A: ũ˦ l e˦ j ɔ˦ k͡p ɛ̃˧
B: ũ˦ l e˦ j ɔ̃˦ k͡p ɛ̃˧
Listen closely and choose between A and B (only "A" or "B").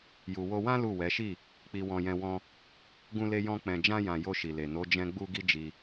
B